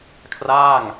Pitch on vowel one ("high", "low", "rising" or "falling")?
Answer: falling